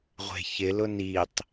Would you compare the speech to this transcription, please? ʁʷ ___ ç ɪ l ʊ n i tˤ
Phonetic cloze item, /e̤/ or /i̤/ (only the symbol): e̤